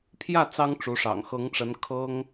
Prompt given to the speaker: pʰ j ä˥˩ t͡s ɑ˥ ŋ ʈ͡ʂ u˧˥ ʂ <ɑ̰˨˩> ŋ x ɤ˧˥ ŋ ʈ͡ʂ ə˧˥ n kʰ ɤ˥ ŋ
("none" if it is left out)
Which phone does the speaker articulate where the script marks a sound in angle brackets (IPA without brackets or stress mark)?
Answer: ɑ̰˨˩